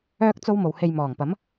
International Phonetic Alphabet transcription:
œː˥k̚t͡so˥wmo˨whe˧j mɔː˨˩ŋpɐ˨˥m

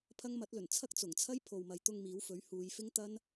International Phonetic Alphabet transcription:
pʰɐ˥ŋ mɐ˨˥t̚lɵ˨˩n t͡sʰɐ˥k̚t͡sʊ˨˩ŋt͡sʰɐ˥j pʰo˨wmɐ˨jt̪ʊ˧ŋ miː˨˥wfɵ˨˥ɥ huː˨˧jfɪ˥ŋ t̪ɐ˥n

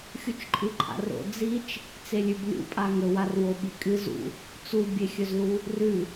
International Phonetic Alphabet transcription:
xʲut͡ʃǃʼɨǃʰa̰ro̰ d͡zit͡ʃ | t͡selʲʉblʲṵ pʼaŋɵwarwo ɓikʼɨ zṵ | t͡subʲexʲɵzlu | rʉ

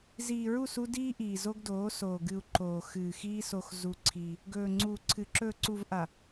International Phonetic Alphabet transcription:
ziː˨ɹu˦˨su˦ diː˦ʔiː˨ zo˦ɡdoː˨˦soː˨ɡɨ˨u̯ ǃoː˨ xɨː˨xiː˦ so˦xzu˦ǀʰiː˦ | ɡɵː˨ŋ͡ǀuː˨ǀʰɨ˨ ǁɵː˨ǀu˨vʔa˨

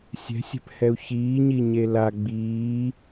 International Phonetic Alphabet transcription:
sʲɛ̤sʲɛ̤phɛu̯ çiːɲiɲe la ɡ͡biː

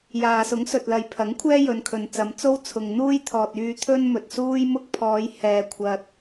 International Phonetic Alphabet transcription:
jaː˨sʊ˨˥ŋ sɵ˨t̚lɐ˨jpʰɐ˨˥ŋkʷʰɛː˥ jɵ˨˧nkʰɵ˨nt͡sɐ˨˧m t͡so˥wt͡sʰʊ˨ŋ n̪uː˥jt̪ʰɔː˨t̚yː˧ t̪ʰɵ˥nmɵ˨t̚suː˥j mʊ˥k̚ pʰɔː˨˧j hɛː˨kʷʰɐ˨t̚

